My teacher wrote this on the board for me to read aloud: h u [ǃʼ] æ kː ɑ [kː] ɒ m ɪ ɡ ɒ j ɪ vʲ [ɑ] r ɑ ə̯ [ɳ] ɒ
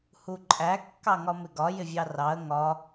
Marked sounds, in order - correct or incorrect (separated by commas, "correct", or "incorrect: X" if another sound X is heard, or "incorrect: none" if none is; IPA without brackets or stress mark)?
correct, incorrect: ŋ, correct, incorrect: ŋ